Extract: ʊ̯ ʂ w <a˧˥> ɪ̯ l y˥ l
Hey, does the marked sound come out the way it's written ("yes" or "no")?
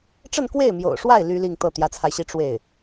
no